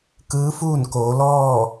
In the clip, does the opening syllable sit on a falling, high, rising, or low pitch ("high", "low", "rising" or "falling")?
rising